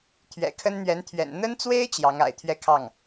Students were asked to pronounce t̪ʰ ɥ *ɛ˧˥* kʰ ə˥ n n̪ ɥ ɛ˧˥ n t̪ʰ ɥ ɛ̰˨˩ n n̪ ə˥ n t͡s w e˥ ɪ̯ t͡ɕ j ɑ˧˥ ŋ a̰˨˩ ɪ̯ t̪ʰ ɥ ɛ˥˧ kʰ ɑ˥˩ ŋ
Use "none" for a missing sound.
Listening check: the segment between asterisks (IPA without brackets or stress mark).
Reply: ɛ̰˨˩